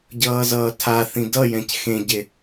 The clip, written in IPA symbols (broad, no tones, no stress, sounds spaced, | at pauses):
ɟ ʌː z ʌː tʰ a θ ĩ d ʌ j ɛ̃ c x ẽ ɟ e